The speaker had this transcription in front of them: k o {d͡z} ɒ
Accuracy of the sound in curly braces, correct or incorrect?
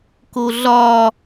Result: incorrect